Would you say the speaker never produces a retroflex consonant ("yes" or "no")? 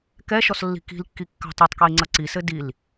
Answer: yes